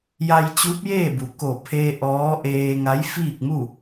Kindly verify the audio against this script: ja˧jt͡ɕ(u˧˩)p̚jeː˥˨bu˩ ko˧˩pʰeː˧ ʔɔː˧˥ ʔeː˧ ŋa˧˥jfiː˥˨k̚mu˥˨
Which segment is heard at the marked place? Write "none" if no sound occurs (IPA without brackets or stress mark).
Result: u˧˥